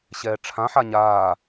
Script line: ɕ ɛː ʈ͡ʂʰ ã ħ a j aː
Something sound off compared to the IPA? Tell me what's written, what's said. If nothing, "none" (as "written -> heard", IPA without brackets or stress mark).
j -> ɲ